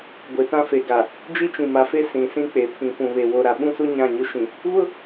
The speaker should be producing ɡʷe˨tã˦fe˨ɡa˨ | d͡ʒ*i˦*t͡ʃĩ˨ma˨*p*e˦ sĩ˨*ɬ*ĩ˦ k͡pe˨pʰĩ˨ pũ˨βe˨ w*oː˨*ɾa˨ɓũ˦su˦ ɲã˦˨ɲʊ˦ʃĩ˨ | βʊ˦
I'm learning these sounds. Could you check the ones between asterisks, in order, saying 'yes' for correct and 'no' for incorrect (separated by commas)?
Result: yes, no, no, no